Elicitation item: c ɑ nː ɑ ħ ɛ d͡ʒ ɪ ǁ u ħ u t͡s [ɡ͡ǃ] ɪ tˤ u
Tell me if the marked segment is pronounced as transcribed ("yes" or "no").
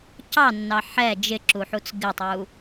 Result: no